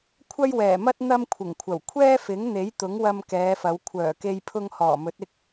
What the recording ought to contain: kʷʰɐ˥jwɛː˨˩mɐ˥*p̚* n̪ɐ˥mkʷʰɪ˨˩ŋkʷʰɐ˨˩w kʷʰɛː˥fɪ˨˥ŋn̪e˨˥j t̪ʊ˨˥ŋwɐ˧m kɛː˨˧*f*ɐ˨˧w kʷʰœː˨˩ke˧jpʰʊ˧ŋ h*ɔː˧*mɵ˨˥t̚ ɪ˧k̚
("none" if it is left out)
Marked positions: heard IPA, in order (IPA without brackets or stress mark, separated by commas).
t̚, f, ɔː˨˩